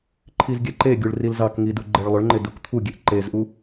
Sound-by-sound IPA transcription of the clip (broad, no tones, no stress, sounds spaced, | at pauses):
ǃʰ i z ɡʲ ɛ ǃ e ɡʲ u ɭ r i l z ɑ k ŋ i d u ɡ͡ǃ ɛ ɭ lˠ ʏ ɭ ŋ͡ǃ ɪ d u k t̪ʰ u ɡʲ e ʔ ǃ e z ʔ u